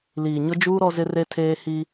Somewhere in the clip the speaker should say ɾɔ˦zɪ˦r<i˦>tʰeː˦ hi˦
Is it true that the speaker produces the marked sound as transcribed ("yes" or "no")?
no